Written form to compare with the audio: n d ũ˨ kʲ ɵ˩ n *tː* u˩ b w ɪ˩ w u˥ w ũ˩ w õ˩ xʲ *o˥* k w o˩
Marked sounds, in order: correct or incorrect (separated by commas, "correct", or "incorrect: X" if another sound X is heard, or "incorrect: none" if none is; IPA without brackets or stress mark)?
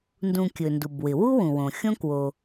incorrect: d, incorrect: õ˥